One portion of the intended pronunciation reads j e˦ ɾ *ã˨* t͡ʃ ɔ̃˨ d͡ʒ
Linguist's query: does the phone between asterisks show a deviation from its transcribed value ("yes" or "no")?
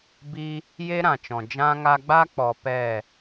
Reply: no